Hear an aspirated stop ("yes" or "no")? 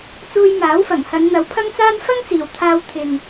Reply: yes